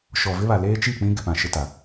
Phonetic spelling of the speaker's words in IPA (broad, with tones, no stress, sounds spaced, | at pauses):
ʃ ɔ˨ v ɪ˦ β a˨ l eː˦ t͡ʃ i˦˨ k͡p ĩ˦ ɡ ɪ˨ p ã˨ ʃ ɪ˦ t a˨